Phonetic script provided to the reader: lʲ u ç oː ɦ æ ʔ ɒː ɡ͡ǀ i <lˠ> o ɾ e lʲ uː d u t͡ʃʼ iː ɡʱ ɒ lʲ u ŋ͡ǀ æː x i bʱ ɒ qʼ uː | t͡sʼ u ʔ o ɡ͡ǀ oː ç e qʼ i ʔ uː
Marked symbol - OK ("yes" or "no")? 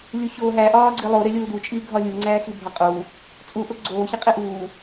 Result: yes